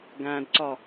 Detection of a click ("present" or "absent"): present